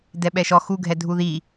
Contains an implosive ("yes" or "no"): yes